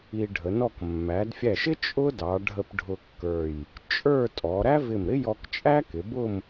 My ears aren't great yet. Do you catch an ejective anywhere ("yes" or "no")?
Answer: yes